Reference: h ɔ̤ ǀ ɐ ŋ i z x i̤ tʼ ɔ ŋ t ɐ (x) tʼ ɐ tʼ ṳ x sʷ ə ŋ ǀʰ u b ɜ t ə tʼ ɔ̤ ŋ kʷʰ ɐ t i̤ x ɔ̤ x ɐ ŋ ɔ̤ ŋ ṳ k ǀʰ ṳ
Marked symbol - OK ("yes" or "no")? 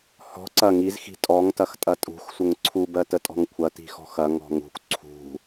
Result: yes